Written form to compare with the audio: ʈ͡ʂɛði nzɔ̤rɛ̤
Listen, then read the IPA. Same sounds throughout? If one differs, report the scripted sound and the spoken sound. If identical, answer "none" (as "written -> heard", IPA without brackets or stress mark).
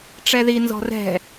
none